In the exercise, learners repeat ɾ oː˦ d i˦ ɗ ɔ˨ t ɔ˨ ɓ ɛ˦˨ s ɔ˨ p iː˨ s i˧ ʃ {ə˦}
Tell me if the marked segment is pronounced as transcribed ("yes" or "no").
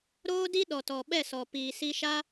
no